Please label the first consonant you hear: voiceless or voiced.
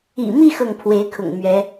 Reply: voiced